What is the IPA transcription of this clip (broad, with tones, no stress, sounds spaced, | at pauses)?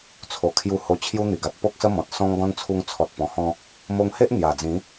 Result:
t͡sʰ o˨˩ kʰ j u˧ h o˧ t͡ɕʰ j u˧ n̪ i˨˩ ɡ a˨ t̚ p o˦ k̚ s ə˦ m ɔ̃˨ t̚ s ɔ̃˧ ŋ ɡ ɔ̃˧ n t͡sʰ u˧ ŋ t͡sʰ ɔ˨ t̚ p ɔ̃˨˩ h ɔ̃˧ | m o˧ ŋ h e˦ ʔ n̪ j a˨˩ d͡z ĩ˨˦